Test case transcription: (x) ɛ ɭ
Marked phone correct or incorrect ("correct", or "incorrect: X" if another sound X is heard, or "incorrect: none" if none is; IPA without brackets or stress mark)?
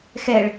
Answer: correct